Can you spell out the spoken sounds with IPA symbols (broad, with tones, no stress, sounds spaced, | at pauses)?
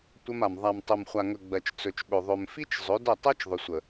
tʷ ɜ˧ m a˨ m ðˤ a˨ m tˤ ɵ˨ m χʷ a˨ ŋ ɵ˨ ɡ͡b ɜ˨ t͡ʃ t͡s ɵ˨ t͡ʃ ɓ ɵ˨ ðˤ ɵ˨ m f i˦ t͡ʃ zˤ ɵ˨˦ d ə˦˨ tˤ ɜ˦ t͡ʃ ðˤ ʏ˨ sʷ ə˨